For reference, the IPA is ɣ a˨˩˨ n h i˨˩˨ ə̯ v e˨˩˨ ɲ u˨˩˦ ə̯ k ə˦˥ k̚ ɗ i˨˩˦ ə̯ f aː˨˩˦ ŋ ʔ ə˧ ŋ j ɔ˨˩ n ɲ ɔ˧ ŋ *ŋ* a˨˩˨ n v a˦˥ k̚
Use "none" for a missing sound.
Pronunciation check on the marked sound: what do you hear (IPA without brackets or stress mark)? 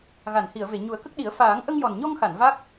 x